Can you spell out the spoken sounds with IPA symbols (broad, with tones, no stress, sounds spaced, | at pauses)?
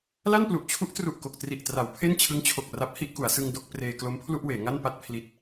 l a˥˩ n p l u˨˩ ʔ t͡ɕʰ u˦˥ ʔ t r u˨˩ ʔ k o˨˩ k̚ t r i˨˩ ʔ t r a˩˦ w pʰ e˥˩ n t͡ɕʰ ɯ˦˥ ŋ t͡ɕʰ o˨˩ k̚ r a˦˥ p̚ h i˥˩ ʔ k u˩˦ a̯ s ɯ˧ ŋ d o˥˩ k̚ p r eː˧ k l o˦˥ m pʰ l u˥˩ ʔ w eː˩˦ ŋ a˥˩ n p a˥˩ t̚ pʰ l i˦˥ t̚